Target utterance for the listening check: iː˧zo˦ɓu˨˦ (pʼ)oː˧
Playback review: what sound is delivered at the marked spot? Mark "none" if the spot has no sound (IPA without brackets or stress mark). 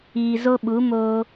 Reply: m